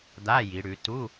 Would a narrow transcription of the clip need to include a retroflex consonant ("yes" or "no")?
yes